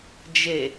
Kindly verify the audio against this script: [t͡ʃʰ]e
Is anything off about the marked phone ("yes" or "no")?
yes